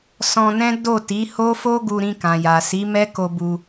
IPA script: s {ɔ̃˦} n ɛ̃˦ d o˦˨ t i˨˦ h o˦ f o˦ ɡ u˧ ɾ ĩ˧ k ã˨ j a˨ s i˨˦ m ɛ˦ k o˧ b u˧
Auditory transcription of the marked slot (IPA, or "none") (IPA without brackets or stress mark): ɔ̃˧